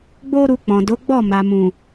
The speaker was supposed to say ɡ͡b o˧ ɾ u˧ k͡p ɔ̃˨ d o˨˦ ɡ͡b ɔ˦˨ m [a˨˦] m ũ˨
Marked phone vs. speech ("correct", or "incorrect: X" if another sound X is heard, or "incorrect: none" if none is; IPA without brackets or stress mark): incorrect: a˨